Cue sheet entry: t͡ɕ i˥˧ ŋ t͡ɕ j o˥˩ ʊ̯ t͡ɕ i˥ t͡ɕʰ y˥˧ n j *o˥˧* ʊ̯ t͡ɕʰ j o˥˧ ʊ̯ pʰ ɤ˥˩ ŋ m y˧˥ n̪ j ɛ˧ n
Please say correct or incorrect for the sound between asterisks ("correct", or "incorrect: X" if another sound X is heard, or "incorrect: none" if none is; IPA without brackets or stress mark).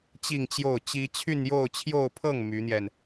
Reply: correct